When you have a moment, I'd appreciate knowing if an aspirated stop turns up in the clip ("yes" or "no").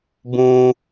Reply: no